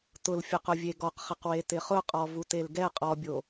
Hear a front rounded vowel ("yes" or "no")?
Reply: no